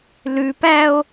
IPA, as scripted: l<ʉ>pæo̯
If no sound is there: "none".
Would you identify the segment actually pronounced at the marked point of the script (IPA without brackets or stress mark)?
ʉ